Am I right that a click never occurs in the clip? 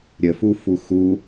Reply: yes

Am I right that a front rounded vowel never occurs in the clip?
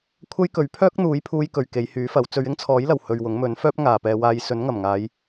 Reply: no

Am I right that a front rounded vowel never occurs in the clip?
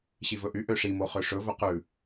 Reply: no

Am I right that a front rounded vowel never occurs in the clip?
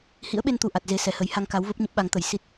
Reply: yes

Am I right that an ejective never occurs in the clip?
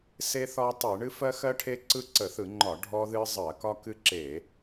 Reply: yes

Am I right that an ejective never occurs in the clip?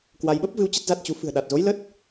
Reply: yes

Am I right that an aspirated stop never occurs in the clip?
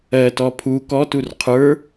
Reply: no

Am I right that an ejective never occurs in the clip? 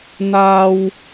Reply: yes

